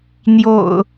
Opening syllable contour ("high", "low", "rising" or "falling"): low